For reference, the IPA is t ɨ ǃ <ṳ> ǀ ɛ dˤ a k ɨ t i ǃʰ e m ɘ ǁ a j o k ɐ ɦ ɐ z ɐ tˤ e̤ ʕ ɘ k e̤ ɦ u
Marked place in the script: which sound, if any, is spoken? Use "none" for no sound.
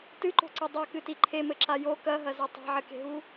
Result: o̤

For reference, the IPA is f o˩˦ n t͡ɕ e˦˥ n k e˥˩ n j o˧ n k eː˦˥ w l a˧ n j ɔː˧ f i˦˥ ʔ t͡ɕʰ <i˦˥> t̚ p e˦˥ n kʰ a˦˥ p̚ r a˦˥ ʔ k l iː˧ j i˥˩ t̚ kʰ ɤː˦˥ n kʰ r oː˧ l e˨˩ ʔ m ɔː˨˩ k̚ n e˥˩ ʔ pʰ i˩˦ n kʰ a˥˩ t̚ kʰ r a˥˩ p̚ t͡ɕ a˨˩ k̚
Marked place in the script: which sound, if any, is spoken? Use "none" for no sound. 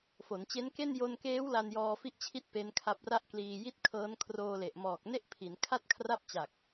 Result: i˦˥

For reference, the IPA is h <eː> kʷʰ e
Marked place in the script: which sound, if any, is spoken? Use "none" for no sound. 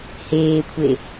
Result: eː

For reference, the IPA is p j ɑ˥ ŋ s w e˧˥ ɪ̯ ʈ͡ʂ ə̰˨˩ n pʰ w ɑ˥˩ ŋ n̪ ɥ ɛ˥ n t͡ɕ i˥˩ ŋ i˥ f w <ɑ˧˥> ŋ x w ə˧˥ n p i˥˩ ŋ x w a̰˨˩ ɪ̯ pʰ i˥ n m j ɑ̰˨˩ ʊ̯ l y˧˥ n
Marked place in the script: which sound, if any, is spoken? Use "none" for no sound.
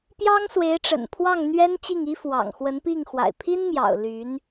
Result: ɑ̰˨˩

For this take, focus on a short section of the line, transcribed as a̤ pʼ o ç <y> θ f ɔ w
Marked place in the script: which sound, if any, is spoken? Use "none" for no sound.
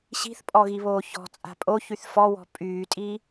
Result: y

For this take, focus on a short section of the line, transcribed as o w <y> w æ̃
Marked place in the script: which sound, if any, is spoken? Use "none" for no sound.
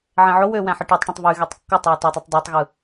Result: ø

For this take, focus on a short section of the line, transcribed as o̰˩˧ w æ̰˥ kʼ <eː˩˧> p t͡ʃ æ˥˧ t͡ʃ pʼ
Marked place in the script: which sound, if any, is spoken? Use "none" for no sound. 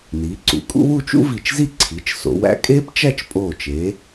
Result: eː˥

